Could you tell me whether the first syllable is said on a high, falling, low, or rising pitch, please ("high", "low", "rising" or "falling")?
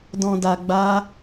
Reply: low